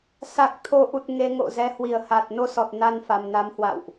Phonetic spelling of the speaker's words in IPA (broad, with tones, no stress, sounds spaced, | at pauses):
s a˨˩ k̚ t̪ʰ o˨˦ ʔ u˨˩ t̚ ŋ e˧ ŋ o̰˧˨ z ɛ˨˦ h w i˧˩ ə̯ h a˨˩ t̚ n o˧ s ɔ˨˩ t̚ n a˧ n f a˨˩ m n a˨˦ m h w a̰˧˨ w ʔ